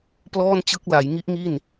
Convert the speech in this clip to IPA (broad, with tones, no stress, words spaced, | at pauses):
plɔː˥˩nt͡ɕɯ˦˥k̚ la˩˦jŋi˦˥ʔŋi˥˩n